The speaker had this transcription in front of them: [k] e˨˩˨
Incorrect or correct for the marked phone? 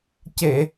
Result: incorrect: c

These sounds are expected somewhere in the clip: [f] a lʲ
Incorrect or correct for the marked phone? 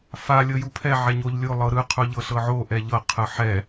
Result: correct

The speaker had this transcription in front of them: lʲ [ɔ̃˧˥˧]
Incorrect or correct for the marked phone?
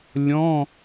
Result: correct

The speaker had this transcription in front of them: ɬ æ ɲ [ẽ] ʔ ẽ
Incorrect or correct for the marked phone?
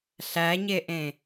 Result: incorrect: e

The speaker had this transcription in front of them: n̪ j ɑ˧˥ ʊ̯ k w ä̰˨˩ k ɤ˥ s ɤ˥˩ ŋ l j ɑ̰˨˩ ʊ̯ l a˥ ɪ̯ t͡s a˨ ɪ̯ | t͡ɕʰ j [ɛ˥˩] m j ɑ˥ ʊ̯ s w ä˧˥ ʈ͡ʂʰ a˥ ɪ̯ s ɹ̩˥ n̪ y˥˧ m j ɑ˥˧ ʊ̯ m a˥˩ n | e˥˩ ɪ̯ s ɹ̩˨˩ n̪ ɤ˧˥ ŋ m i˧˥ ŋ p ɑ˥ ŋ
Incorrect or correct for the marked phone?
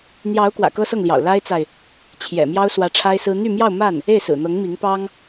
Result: incorrect: ɛ̰˨˩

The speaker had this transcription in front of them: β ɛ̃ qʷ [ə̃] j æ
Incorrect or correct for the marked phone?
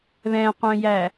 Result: incorrect: œ̃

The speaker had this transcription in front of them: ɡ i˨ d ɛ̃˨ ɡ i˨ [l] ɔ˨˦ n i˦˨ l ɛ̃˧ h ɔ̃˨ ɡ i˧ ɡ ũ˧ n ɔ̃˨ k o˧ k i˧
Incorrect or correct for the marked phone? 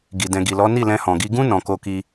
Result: correct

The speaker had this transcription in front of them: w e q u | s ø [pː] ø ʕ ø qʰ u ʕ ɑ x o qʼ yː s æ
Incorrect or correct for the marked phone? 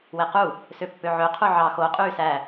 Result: correct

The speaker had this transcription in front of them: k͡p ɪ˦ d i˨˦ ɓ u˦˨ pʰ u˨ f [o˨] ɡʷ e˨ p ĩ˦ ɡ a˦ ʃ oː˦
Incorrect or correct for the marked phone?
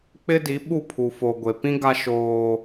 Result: correct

